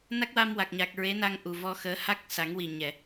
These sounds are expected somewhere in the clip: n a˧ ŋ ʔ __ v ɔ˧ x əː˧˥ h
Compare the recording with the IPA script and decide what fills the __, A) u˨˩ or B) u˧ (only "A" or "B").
A